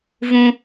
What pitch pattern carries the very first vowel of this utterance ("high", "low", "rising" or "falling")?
high